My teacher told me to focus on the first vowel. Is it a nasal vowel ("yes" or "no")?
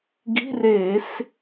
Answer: no